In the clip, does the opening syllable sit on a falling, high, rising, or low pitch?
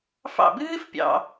falling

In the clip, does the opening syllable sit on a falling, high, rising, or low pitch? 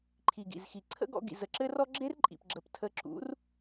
low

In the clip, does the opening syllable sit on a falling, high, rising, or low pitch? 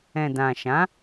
low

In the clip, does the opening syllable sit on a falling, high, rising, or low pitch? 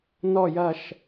falling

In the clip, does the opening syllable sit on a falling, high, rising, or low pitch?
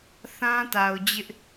high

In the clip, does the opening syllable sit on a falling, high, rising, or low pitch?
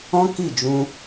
high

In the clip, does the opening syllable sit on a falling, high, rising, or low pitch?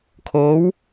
rising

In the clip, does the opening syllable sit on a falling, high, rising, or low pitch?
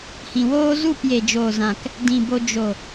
low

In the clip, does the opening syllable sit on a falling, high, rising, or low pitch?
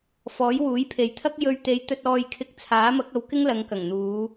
rising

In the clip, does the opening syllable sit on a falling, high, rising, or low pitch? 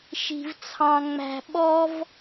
low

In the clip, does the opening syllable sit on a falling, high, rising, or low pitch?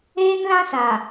high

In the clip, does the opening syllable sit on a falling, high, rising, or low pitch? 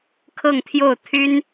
falling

